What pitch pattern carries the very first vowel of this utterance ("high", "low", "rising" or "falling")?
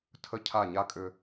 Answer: falling